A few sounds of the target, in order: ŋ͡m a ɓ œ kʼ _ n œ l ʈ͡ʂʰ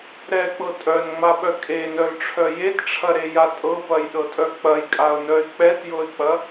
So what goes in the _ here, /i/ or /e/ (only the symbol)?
e